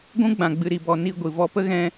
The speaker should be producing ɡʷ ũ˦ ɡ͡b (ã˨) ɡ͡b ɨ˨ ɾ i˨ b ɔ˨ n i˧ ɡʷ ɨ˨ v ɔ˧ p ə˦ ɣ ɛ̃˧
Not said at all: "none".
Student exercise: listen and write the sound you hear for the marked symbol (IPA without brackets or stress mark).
ã˨